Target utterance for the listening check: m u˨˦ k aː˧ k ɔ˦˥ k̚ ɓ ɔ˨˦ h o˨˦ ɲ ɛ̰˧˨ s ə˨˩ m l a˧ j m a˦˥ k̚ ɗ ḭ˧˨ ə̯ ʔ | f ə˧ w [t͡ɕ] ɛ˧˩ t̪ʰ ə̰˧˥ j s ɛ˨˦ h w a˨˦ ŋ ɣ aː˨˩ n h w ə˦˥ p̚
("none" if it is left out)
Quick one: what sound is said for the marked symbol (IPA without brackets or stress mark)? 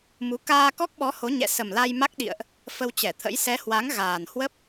t͡ɕ